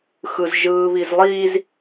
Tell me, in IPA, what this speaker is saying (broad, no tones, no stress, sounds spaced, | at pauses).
x ɯ z ʒ ɯː β i z lˠ iː z